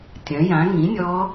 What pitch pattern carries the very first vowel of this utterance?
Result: rising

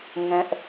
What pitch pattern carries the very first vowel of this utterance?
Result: high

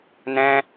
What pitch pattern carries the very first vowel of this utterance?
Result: high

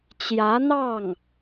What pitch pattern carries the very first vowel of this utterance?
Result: rising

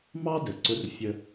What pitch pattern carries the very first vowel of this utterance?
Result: high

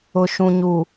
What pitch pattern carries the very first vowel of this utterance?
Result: low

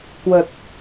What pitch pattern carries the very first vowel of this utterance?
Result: low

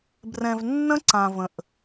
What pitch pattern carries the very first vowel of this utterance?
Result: low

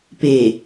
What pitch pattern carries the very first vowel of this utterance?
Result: low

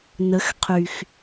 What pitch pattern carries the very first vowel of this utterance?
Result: rising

